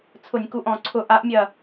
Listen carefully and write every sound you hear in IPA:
t͡sʰ ʊ˧˩˧ nʲ k u˧˩˧ ʔ ɔ̃˧˩˧ ǀʰ ʊ˧˩˧ ʔ a˨˥ ʔ mʲ ɐ˦˨

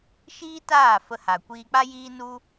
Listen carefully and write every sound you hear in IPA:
ʃ iː˦ t aː˦˨ f ə˧ h a˨ kʷ iː˧ k͡p a˦ j iː˦ n u˦

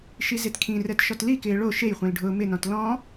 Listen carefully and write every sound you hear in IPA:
ʃ i z e t kʰ ĩ r ɛ t ʃ ɔ t l i k ɪː ɭ o ʃ e j χʷ ẽ l ɖʱ ʊː m ɪ n ɔ̃ t l ɔ̃

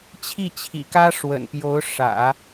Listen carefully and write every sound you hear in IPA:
t͡ɕʰ i˥˩ t͡ɕʰ ḭ˨˩ k ä˥ ʂ w ə̰˨˩ n p j o˧˥ ʊ̯ ʂ ä̰˨˩˦

